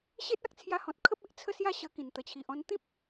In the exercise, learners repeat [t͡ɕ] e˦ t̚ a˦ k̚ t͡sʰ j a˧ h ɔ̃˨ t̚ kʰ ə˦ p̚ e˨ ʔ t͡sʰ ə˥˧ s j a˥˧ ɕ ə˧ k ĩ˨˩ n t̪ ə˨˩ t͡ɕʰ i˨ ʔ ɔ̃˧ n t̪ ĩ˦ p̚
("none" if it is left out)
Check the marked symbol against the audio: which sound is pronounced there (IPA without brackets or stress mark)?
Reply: ɕ